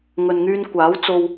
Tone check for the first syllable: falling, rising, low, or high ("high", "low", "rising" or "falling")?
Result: low